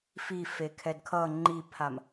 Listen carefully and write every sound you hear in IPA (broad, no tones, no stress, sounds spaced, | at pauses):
f i f e kʰ ɛ d kʰ ʌ ŋ͡ǃ i pʰ a m